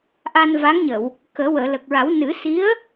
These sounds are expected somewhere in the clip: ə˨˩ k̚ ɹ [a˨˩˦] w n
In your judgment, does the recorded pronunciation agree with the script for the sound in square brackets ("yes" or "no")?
yes